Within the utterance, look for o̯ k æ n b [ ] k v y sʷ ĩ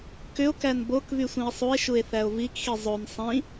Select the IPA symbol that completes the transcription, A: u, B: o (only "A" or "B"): B